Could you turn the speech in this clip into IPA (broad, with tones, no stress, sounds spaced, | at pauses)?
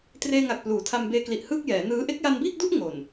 t r eː˧ ŋ a˨˩ k̚ p l uː˩˦ tʰ a˧ m b eː˧ k l i˨˩ ʔ h ɯː˥˩ k̚ j ɛː˩˦ n ɯː˦˥ ʔ e˦˥ k̚ j a˧ n b iː˥˩ k̚ d u˥˩ ʔ ŋ o˨˩ n